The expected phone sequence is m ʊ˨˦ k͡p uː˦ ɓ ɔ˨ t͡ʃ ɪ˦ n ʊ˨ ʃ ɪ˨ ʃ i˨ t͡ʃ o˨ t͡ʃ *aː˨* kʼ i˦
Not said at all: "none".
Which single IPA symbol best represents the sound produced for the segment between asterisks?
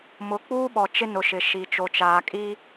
aː˨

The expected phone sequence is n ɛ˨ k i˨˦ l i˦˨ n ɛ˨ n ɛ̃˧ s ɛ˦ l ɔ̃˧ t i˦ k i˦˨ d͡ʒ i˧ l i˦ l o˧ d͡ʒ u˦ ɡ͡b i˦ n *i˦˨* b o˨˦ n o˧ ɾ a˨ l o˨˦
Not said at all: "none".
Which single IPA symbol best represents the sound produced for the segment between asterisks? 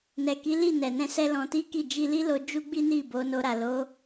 i˦˨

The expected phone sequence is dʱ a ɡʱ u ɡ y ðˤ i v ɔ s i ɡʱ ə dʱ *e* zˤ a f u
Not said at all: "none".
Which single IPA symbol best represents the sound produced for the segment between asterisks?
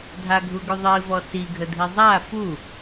i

